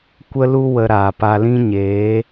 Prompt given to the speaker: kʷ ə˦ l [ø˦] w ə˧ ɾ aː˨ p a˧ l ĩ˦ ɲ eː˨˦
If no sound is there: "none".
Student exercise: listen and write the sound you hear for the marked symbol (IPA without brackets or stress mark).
u˦